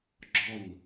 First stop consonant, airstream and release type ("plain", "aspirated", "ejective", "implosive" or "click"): click